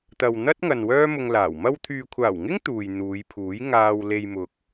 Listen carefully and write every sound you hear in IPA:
t̪ ɐ˨ w n̪ ɐ˥ t̚ ŋ ɐ˨ n w œː˥ m ʊ˧ ŋ l aː˨˩ w m ɐ˧ w t̪ʰ yː˨ kʷʰ aː˨˩ w ŋ ɪ˥ ŋ t̪ uː˨ j n̪ uː˨˧ j pʰ uː˨˥ j ŋ aː˧ w l e˧ j m ʊ˨ k̚

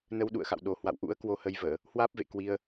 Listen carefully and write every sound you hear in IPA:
n ə˧ w ɗ ṵ˧˨ ə̯ x a̰˧˨ w ɗ o˨˩ h w a̰˧˨ w ʔ ṵ˧˥ ə̯ k w o˧ h ə˧ j v əː˧˩˨ | h w aː˦˥ p̚ v ḛ˧˨ k w i˧ ə̯

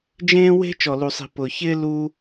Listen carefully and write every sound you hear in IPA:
d͡ʒ ẽː˥ w e̤˥ t͡ʃ ɔ˧ l u˧ sˤ i̤˧ p ʊ˧ ç ɪː˥ l u˥

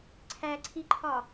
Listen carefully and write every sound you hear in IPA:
ǀʰ æ ǀʰ i ǃʰ ɒ

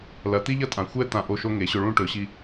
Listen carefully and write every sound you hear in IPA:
l ɐ˩˧ t̪ i˥ ʎ ɐ˥ tʼ ã˩˧ xʷ ɛ˥ t̪ ã˧ ʔ o˥˧ ʃ o˥ ŋ e˩˧ ɕ ɵ˧ ɭ ũ˥˧ ʈ ɵ˩˧ ɕ i˧

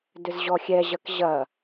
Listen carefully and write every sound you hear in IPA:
d ʏ z ʑ ɔ xʲ ɛ ʑ ɐ k ʑ ɐ

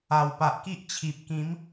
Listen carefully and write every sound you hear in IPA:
a˨˩ w p a˨ ʔ k i˦ ʔ t͡ɕʰ i˨ p̚ k ĩ˨˦ m

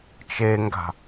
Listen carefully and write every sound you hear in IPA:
t͡ʃ e ŋ ɡ a̤

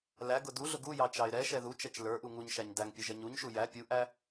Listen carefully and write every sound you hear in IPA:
l æ ɡ ʊ d u ɮ ʊ ɡ u j ɑ t͡ʃ ɑ ɪ̯ ɾ ɛ ʃ ɛ ð u t͡ʃ ɛ t͡ʃ l ə˞ ʔ u ŋ u ɲ ʃ æ ɲ d æ ŋ pʲ ʊ ʒ ɛ ɲ u ɲ ʃ u j æ pʲ u ʔ æ

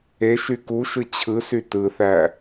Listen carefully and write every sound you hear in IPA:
e ʃ y k u ʃ ɯ t͡ɕʰ ɯ s y t ɯ θ æ

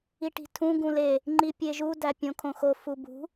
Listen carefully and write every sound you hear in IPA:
i ʈ i̤ tʰ ũ ɡ ũ l e | ŋ͡ǃ i pʲ e ʒ u d æ pʲ õ kʰ õ x o f u b ṳ

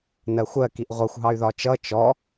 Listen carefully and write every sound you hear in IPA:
n ɜ xʷ ɜ k i ʔ ʁʷ ʌ xʷ ɦ ɑ y̯ ð ɒ t͡ʃ ʌ t͡ʃ ɔ

